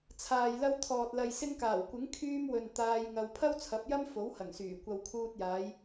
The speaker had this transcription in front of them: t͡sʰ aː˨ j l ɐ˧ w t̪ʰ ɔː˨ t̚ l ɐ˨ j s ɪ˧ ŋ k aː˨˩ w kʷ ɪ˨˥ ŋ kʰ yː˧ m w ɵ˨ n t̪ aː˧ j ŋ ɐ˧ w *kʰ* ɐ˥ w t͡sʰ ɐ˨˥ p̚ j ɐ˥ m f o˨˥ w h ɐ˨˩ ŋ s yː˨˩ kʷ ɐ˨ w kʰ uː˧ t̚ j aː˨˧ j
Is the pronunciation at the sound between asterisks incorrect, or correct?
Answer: incorrect